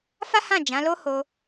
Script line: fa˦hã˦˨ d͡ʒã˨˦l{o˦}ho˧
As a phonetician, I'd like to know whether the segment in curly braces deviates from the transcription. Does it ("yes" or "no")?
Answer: no